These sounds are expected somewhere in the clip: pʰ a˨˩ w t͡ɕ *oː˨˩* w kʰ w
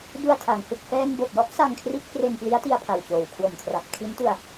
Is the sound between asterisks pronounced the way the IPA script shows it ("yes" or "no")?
yes